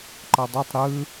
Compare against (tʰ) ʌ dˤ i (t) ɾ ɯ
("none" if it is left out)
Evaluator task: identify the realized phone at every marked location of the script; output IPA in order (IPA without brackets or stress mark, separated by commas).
ǃ, tˤ